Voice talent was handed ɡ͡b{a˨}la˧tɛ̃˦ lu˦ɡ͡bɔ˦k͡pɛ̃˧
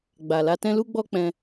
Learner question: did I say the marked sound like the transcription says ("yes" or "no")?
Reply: yes